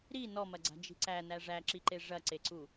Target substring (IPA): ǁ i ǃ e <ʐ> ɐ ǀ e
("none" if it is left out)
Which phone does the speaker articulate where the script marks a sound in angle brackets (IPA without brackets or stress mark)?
ʐ